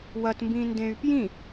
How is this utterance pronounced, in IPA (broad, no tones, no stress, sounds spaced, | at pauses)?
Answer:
w ɐ t m b ĩ n d ẽ y̯ p j ĩ